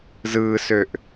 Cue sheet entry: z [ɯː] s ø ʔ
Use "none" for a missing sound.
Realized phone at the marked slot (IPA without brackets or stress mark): ɯː